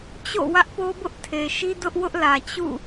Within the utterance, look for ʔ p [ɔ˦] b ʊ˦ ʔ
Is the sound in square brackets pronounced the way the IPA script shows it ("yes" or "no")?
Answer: no